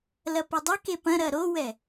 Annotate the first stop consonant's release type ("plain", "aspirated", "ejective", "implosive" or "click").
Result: plain